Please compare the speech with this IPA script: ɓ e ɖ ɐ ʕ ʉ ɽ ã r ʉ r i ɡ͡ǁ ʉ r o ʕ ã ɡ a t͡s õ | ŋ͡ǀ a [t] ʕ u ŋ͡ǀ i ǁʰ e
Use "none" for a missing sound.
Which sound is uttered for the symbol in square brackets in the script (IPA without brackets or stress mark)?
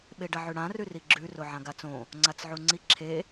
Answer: t͡s